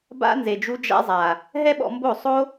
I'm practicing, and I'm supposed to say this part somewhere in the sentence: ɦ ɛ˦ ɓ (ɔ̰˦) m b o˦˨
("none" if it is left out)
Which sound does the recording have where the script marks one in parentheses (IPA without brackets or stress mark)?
ɔ̰˧